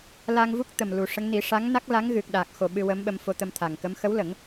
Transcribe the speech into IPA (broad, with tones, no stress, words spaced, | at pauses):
la˧ŋvu˦˥k̚ t̪ə˨˩mlu˨˩ʂə˧˥ŋ ni˨˩˦ʂa˧˥ŋ na˦˥k̚la˧˥ŋɣɨ˨˩k̚ ɗa˨˩k̚xo˨˩ ɓɨ˧wə˧˥mɓə˧m fo˧t̪ə˧m t̪ʰa˨˩ŋkə˧˥m xə˧˥wlə˨˩˦ŋ